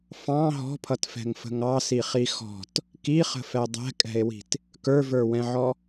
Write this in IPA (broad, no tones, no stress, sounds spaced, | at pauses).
f ɑ̃ ɦ ɔ̤ pʰ ʌ t f ɛ̤ ŋ f ə̤ ŋ ɑ s i χ i x ɔ̤ t | k i χ ə̤ f ɛ dˤ ɛ̤ kʼ ɛ̤ e̯ w i̤ t | k ə˞ v ə˞ w ɛ̃ ʕ ɔ